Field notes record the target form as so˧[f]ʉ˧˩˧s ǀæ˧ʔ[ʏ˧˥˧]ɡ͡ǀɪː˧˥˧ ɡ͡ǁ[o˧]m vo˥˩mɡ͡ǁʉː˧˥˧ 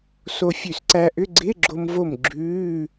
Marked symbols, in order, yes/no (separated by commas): no, yes, yes